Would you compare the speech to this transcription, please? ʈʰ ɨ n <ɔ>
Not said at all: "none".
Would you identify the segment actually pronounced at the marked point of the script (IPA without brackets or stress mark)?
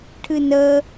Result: ə